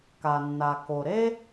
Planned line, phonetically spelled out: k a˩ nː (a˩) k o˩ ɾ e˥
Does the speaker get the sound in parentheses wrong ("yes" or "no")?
no